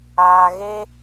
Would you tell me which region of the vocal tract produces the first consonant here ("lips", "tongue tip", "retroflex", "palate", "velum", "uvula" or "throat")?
velum